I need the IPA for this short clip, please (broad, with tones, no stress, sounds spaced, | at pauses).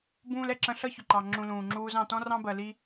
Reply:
b ũː˧ l ɛ˨ ǁ ə̃˧ ɬ ʌ˦ ç ʊ˨ ǃ ɑ˨ ŋ͡ǁ ũ˧ l ũː˨ ŋ͡ǁ uː˦ z ɑ̃˧ t ɔ̃˦ r ɑ̃˦ b ɜ˧ l i˦